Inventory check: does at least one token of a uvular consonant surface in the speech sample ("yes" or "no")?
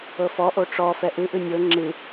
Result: no